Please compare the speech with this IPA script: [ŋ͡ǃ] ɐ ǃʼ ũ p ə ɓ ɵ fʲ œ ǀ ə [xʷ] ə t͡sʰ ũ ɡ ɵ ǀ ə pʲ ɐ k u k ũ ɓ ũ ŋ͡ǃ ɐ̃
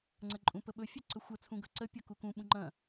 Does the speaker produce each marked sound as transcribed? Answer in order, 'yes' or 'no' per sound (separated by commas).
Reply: no, yes